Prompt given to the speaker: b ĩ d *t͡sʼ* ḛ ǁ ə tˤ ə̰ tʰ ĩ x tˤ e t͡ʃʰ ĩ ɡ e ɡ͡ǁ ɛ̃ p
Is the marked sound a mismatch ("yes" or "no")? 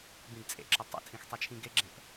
no